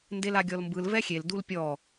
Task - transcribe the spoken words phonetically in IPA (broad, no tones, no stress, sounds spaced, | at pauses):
n d e l a ɡʲ ɔ l m b ɯ l v ɛ xʲ e l d u l pʲ ɔ